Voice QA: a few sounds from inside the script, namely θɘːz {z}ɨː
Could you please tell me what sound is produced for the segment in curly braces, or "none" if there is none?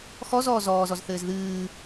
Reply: ð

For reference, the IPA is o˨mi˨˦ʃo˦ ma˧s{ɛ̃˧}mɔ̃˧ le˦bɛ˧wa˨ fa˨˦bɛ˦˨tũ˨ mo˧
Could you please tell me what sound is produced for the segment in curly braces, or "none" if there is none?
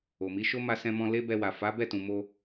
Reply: ɛ̃˧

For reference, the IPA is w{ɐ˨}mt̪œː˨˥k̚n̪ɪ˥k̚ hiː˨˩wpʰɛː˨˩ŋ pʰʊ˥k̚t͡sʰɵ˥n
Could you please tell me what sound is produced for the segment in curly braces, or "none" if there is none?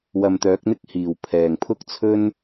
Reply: ɐ˨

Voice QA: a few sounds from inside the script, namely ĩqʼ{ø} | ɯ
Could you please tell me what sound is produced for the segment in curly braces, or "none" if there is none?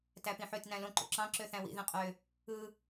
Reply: ø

